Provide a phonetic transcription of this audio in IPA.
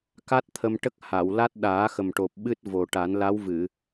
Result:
k a˦˥ t̚ t̪ʰ ə˧ m ʈ ə˦˥ k̚ h a˨˩˨ w l a˦˥ t̚ ɗ aː˨˩˦ x ə˨˩ m ʈ o˨˩ p̚ ɓ ɨ˦˥ t̚ v o˨˩ ʈ a˨˩˦ n l a˧˥ w v ɨ˨˩˨

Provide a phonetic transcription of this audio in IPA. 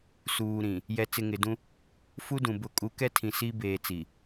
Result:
s uː˨ ɾ ĩ˨ | j ɛ˨ t͡s ɪ˨ ŋ ɪ˨ d ũ˦ | f u˦ d ũ˨ b ʊ˦˨ kʼ u˨˦ k ɛ˦ tʰ ĩ˨ s i˦ b eː˨ t͡s i˨

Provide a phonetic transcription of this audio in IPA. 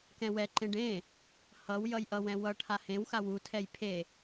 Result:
k ɛ̃ w ɛ ǃ ẽ ɖ ẽ | h ʌ w j ʌ j ʔ ʌ w ɛ̃ w ʌ ʈʰ a h ẽ w x a w u tʰ ɛ j pʰ e

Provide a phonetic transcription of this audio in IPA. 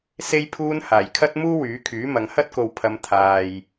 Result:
s e˧ j pʰ uː˧ n h aː˨˩ j kʰ ɐ˥ t̚ m uː˥ w yː˨˥ kʰ yː˨˥ m ɐ˨˧ ŋ h ɐ˥ t̚ k o˨ w pʰ ɐ˨˧ m t̪ʰ aː˨ j

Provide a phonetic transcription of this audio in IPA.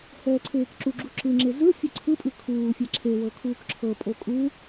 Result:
h ɛː ǀʰ eː k ǁ u ɡ͡ǁ u ǁ ɯ ŋ͡ǁ e z ɯ fʲ ɯ ǀʰ ɯ pʼ ɯ kʰ uː fʲ ɛ ǁʰ e w ɤ kʰ uː k ǁʰ ɤ pʼ o kʼ u

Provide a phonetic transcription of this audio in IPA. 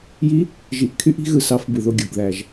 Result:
j i˧˥ | ʒ i˨˩ ʔ kʰ y˧ ʔ i̤˧ ɣ ɯ˧ s ɑ˧˥ f b ɯ˨˩ ð o˥˨ ɡʲ o˨˩ ɡ ð æ˨˩ ʒ

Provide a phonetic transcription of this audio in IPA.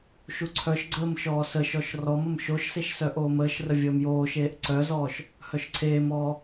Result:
ʃ u ǀʰ œ ʃ ɡ͡ǀ əː m ʃ ɔː s ə ʃ ɔ ʃ r ɔ m ə m ʃ o ʃ s e ʃ s œ ʔ oː m əː ʃ r ə vʲ əː m j oː ʃ eː ʔ ǀ œ z ɔː ʃ | h œ ʃ ǀʰ eː m ɔː

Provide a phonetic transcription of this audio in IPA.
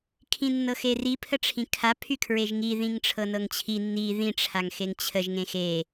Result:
kʰ ĩ nː ɤ x e r i pʰ ə ʈ͡ʂʰ ĩ kʰ a pʰ y kʰ ɹ e ʒ ŋ i ð ĩ ŋ ʈ͡ʂʰ ɤ n ɤ ŋ t͡ɕʰ i nː i ð ĩ ʈ͡ʂʰ a ŋ x e ŋ t͡ɕʰ ə ʒ ŋ ẽ x e

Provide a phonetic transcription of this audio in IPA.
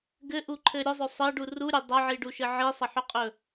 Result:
ɡ ɘ ʔ u ǃʰ ɘ ɾʲ ə zˤ ɵ sˤ ɘ ɖ u r u ɾʲ ɘ dˤ ʌ ʕ i ɖ u ʃ ɘ ʕ i sˤ ʌ ħ ɵ qʼ ɵ

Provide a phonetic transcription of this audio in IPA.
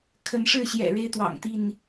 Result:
kʰ ə˨˦ n ʂ ɻ̩˥˨ ɕ j ɛ̰˨˩ ɻ e˦ ɪ̯ t̪ w ɑ̰˨˩ ŋ t̪ i˥˨ n

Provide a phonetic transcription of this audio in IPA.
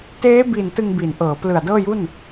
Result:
t eː˦˥ b i˨˩ n t ɯ˧ ŋ b iː˩˦ n ʔ ɤː˩˦ p l ɯ˨˩ a̯ d ɤː˥˩ j u˥˩ n

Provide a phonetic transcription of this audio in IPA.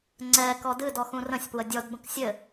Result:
ŋ͡ǀ ɛ k ɔ d ɨ d ɔ x ũ r ə̃ sʲ p w ə dʲ ɔ d b ə̃ k sʲ ɘ

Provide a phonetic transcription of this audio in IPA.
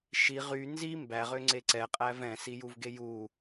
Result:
ʃ i ʁ y n z i m b æ ʁ ø ŋ͡ǀ e ǀ ɛ qʼ æ v ɛ̃ s i j u v ɡ e j u

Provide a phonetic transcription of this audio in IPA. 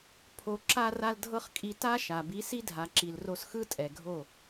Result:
pʰ o˨ ǁ a˧ r a˧ l dʱ ɤ˦ χ kʼ i˧ t a˦ ʃ a˨ b i˨˦ s i˦ dʱ a˨ ǁ i˨ l r o˧ s x ɯ˦ tʼ ɛ˨ ɡʱ o˦˨

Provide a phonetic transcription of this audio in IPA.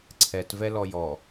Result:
ǀʰ ɛ t v ɛ l ɔ j ɔ

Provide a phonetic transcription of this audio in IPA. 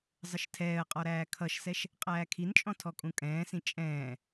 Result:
zˤ ə ʃ tʰ ɛː ə̯ qʼ ɔ ɾ æː kʰ ʌ ʃ s ɛ ʃ | qʼ æː kʰ i n t͡ʃʼ ɔ̃ tʰ ɔ kʼ ũ kʼ ɛ̃ː s ĩ t͡ʃʼ ɛ̃ː

